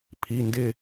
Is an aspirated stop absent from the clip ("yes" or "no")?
no